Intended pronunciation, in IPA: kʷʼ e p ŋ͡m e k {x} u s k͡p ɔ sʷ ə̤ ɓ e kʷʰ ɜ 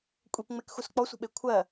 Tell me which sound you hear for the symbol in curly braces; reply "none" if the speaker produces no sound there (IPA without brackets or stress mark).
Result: x